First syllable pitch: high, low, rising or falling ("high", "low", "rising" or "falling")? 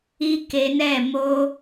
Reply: high